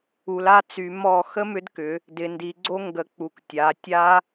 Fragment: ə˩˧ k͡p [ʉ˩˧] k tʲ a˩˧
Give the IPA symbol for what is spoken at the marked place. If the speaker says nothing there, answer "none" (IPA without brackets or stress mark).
u˩˧